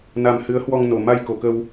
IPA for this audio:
n a˧ m h ɨ˨˦ ə̯ h w ɔ˧ ŋ n o˨˩ m a˧ j k o˨˩ k ə˧ w

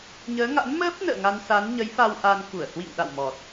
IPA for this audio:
ɲ əː˨˦ ŋ a̰˧˥ n m əː˦˥ p̚ n ə̰ː˧˨ ŋ a˧ n s a˨˦ n ɲ ə˨˦ j f a˧ w ʔ a˧ n k u˧˩ ə̯ h w ḭ˧˨ ŋ ɗ a̰˧˨ w m ɔ˨˩ t̚

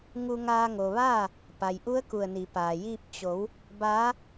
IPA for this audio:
ŋ u˧ ŋ aː˧ ŋ o˩ ʋ aː˥˨ | p a˩ j ʔ u˧˥ ə̯ k u˧˩ ə̯ n i˩˧ p aː˩ j iː˥˨ p̚ t͡ɕ o˩˧ w | b aː˧˥

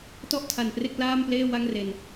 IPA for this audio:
t ɔ˥˩ ʔ tʰ a˨˩ n p r e˥˩ k̚ l aː˥˩ m p l eː˥˩ w a˥˩ ŋ r e˨˩ n

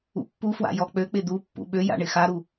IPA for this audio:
ṵ pː u f w a̰ j ɔ k͡p ø k͡p ɪ d̪ u pː ṵ ɓ ø j a̰ ɳ ɪ x a ɾ u

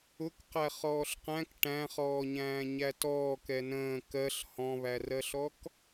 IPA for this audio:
ʊ k q æ χ ɔː ɬ q æ̃ k ʈ æ̃ χ ɔː ɲ æ̃ː ɲ æ t ɔː k ɛ n ə̃ː k ɜ ɬ h ɔ̃ β æ r ɜ ɬ ɔ k

